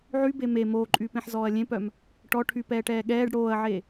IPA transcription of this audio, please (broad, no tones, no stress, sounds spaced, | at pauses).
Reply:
ʕ y b e m e m oː ǃʼ yː p ẽ ħ z ɔː ɐ̯ lʲ ẽ p œ m | ʈ ɔ ʈʰ y p ɛː ʈ ɛː ɠ ɛː ɖ ɽ oː ɐ̯ ʕ e